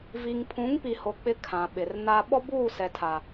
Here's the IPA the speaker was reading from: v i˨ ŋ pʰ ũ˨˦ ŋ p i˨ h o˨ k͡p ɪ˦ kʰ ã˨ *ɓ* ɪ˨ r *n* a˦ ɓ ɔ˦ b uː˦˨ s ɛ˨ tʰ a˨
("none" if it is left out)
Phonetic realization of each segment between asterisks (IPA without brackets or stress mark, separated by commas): ɓ, n